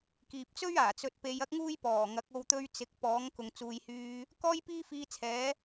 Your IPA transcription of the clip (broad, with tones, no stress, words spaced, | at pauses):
kiː˨p̚t͡sɵ˥ɥaː˨˩ t͡sɵ˧t̚pe˧jɐ˥k̚ŋuː˥j pɔː˨˩ŋɐ˨˥k̚o˧w t̪ɵ˥ɥ t͡sɪ˨˥k̚ pɔː˨˥ŋkʊ˨ŋ t͡suː˨jhyː˧ | kɔː˥jpiː˥fiː˧t͡sʰɛː˨˥